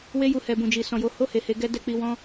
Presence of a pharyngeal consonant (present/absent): absent